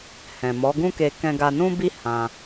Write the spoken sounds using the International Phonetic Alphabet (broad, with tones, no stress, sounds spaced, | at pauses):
h ɛ̃˨ m ɔ˨˦ ɡ ũ˦ k e˧ k ɛ̃˧ ɡ a˧ n ũ˦ b i˦ h ã˧